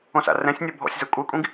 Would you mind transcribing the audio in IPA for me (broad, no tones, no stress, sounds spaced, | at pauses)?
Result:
õ s a̰ r ɛ̃ sʲ nʲ ɔ bʱ ɔ̰ sʲ z ɤ kʷʼ ɛ kʷʼ ĩ ɡ